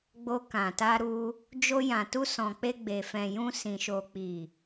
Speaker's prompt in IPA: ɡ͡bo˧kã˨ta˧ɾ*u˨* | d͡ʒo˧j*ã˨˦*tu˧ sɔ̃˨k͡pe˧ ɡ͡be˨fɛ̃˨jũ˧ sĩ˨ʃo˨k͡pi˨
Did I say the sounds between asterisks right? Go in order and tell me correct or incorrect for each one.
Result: incorrect: u˧, incorrect: ã˨

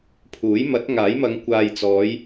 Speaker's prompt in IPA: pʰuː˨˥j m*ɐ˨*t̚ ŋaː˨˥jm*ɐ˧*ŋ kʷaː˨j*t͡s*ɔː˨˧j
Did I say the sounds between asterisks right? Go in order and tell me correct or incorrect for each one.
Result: incorrect: ɐ˨˥, incorrect: ɐ˨˧, correct

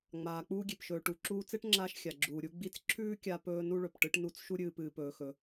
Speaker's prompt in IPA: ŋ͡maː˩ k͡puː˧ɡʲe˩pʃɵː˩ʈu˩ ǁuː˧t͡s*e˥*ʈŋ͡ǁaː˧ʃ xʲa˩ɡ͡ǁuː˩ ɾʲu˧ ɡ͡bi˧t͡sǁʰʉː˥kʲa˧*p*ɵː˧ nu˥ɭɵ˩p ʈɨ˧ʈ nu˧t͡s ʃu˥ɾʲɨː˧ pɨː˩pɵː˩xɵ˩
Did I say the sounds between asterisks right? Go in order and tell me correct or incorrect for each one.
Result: correct, correct

